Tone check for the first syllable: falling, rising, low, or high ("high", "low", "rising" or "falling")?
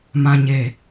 low